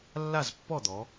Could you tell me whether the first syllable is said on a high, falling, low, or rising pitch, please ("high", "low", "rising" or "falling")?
falling